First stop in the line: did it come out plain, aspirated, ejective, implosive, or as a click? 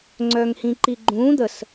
click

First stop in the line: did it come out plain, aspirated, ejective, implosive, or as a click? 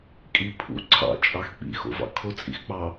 ejective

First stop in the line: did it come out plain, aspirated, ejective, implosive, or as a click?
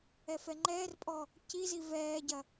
click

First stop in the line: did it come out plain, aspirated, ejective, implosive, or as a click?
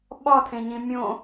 implosive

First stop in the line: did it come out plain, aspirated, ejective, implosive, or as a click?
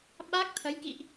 implosive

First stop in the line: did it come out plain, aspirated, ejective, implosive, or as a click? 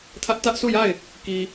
aspirated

